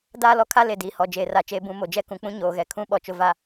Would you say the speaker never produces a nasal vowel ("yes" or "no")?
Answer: no